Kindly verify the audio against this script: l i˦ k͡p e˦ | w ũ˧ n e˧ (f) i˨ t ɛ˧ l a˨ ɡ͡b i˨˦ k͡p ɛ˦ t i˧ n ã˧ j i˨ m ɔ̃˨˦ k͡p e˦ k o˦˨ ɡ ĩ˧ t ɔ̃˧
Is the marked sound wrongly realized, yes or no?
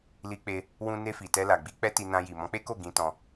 no